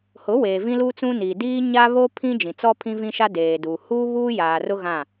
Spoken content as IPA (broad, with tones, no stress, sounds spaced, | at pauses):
h ʊ˨˦ w eː˨ v ĩ˦ l u˦ t͡s ũ˦ n iː˨ d iː˦ ɲ a˦ β o˦ pʰ ĩ˦ d͡ʒ ĩ˨ t͡s ɔ˦ pʰ ĩ˦ v ĩ˦ ʃ a˦ d eː˨ d uː˨ h uː˦ β uː˦ j aː˨ r ʊ˦ ɣ ã˦˨